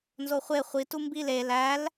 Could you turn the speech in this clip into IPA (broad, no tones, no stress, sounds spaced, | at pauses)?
n z o χʷ e χʷ i t u m b i l e l æ l